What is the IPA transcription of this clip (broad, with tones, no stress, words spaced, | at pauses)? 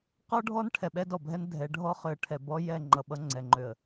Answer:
qɔ˦ɖʱɔ˦n ʈʰɛ˨ɓɛ˦dɔ˨bʱɛ˦n dʱɛ˨˦ɖʱɔ˦ χø˨ə̯ʈʰɛ˨ bɔ˦jɛ˦˨ ŋ͡ǃʌ˨ɓʌ˦ŋ͡ǀɛ˨ŋ͡ǃø˨ə̯